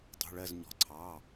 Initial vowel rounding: rounded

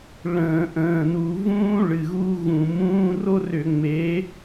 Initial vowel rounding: unrounded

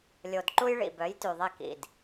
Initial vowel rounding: rounded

